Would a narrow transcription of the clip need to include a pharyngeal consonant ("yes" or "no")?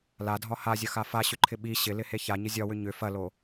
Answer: no